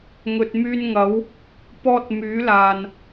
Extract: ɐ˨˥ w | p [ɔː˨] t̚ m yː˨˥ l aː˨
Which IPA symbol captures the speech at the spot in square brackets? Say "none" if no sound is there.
ɔː˧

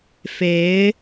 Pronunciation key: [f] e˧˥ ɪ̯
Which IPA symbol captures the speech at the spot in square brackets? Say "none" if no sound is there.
f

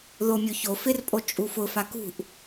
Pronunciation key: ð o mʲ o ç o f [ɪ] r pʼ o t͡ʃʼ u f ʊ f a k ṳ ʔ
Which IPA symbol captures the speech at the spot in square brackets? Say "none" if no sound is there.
ɪ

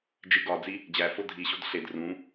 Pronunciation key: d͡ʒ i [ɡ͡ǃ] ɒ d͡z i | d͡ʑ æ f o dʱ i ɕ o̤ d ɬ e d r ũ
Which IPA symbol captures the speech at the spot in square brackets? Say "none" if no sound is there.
ɡ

